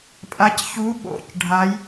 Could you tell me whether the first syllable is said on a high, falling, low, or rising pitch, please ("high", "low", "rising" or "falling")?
rising